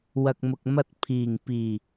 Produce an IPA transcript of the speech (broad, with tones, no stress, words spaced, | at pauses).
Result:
wɐ˨k̚mʊ˨k̚mɐ˧t̚ pʰiː˨˩ŋpiː˨˩